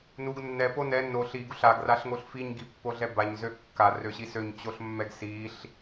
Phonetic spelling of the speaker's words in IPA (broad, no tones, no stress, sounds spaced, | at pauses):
n u ɡ nː ɛ p o n ɛ n o ɬ i ɡ u ɬ a ɡ r a ɬ ŋ o ɬ f i ɲ ɡ i pː o ɮ ɛ b a ɲ z ø kː a r ø ɕ i s ø ɲ t͡ɕ o ɬ mː ɛ ɡ s i ɬ